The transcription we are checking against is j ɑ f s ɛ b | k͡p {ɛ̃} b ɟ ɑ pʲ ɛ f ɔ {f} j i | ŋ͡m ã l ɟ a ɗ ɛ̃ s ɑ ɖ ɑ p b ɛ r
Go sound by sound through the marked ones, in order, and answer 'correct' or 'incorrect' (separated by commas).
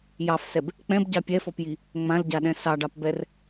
correct, incorrect